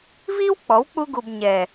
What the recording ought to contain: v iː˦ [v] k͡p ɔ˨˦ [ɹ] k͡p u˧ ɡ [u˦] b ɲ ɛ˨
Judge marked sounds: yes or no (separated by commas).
no, no, no